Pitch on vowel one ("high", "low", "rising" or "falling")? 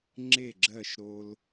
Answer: falling